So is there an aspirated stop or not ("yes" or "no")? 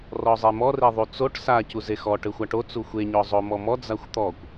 no